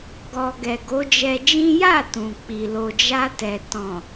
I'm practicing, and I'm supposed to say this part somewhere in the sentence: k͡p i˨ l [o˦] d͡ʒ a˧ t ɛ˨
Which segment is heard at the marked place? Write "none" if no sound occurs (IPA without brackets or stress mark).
o˨